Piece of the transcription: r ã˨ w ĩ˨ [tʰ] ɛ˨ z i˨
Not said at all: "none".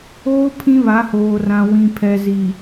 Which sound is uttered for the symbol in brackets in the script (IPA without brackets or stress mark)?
pʰ